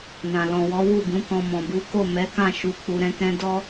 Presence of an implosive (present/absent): absent